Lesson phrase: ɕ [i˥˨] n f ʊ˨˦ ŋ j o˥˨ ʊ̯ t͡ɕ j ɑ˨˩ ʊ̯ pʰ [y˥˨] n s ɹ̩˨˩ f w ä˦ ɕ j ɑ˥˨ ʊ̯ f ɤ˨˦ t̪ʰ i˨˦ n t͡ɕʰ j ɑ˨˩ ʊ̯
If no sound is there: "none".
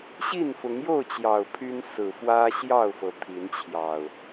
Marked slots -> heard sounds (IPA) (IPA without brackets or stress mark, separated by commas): i˥˨, y˦